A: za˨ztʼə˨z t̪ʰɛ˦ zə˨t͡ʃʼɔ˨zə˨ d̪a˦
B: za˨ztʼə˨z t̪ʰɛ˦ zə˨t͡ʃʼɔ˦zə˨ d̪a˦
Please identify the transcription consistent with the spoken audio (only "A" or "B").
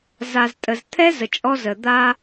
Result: B